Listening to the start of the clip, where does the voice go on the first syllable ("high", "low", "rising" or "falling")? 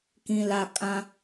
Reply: low